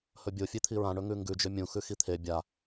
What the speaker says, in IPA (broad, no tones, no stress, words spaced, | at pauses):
hɵbʲo fʲet̪ʰiɹãɳɵ ŋʉŋɡʉ d͡ʒɵmʲũ xʉxit̪ʰe bʲa